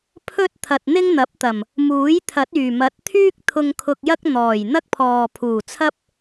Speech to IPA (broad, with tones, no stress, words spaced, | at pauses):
pʰɵ˥t̚t̪ʰɐ˨t̚n̪ɪ˥ŋ n̪ɐ˨˥p̚t̪ɐ˨˩m | muː˨˥jt̪ʰɐ˨˥t̚yː˨˩ mɐ˨˥t̚t̪ʰyː˥k̚ t̪ʰʊ˧ŋ kʰʊ˧k̚jɐ˥k̚ n̪ɔː˨˩j n̪ɐ˥k̚pʰɔː˨pʰuː˨˩t͡sʰɐ˥p̚